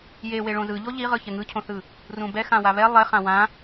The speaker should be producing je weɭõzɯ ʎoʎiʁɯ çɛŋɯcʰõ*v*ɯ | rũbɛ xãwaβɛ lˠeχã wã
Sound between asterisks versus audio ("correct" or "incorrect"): incorrect